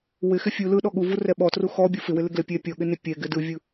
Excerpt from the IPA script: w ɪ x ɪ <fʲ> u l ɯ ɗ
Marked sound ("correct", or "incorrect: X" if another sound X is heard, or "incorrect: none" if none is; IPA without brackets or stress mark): correct